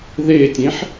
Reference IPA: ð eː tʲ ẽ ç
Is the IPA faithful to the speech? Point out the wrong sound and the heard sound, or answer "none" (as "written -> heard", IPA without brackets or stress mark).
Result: ç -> ħ